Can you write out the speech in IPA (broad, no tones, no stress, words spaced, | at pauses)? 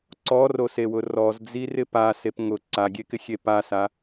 ǀɔrosewʊ rɔzd͡zirɪ pasep ŋʊ ǀaɡʲekɪxʲe pasa